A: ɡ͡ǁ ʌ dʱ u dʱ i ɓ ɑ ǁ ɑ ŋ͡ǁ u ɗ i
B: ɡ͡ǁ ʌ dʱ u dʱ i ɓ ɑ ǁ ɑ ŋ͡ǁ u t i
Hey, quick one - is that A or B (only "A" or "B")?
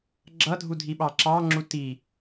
B